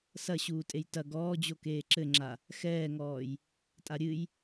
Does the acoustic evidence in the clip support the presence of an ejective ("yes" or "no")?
yes